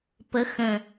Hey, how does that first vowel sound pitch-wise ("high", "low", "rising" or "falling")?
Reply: rising